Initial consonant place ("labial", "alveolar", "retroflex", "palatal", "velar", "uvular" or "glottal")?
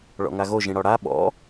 retroflex